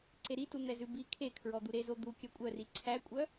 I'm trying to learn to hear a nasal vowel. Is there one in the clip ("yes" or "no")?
no